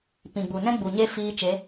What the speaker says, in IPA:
p ĩ˨ ɡ͡b u˨ n ɛ̃˦ ɡ͡b u˨ ɲ e˦ f iː˧ t͡ʃ e˨˦

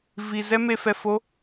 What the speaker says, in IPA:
v i˨ z ɛ˦ m e˧ f ɛ˧ f o˦

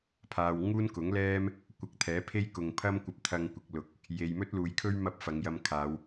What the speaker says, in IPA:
pʰ aː˨ w ŋ uː˥ n k ʊ˨˥ ŋ l ɛː˥ m | kʷ ɐ˧ k̚ t̪ʰ ɛː˨˥ pʰ e˥ j k ʊ˨ ŋ pʰ ɐ˥ m kʷ ɐ˧ p̚ t̪ʰ ɐ˧ ŋ kʷ ɪ˨ k̚ l ʊ˨˥ k̚ | j e˨ j m ɵ˥ t̚ l uː˨ j kʰ ɵ˥ ɥ m ɐ˥ p̚ f ɐ˨˧ ŋ j ɐ˧ m kʰ aː˨˧ w

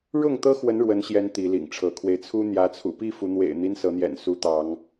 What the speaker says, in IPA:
ɻ ʊ˥˨ ŋ t̪ ɤ˦ x w ə˨˦ n ɻ w ə˨˦ n ɕ j ɛ˨˦ n t̪ i˨˦ l ḭ˨˩ ŋ ʈ͡ʂʰ ɤ˨˦ kʰ w e˧ ɪ̯ t͡sʰ u˦ n̪ j ä˨˦ t͡sʰ ṵ˨˩ p i˥˨ f u˨˦ n̪ w ḛ˨˩ ɪ̯ n̪ i˦ n s ɤ˨˦ n̪ j ɛ̰˨˩ n s u˨˦ t̪ ɑ˨˦ ŋ

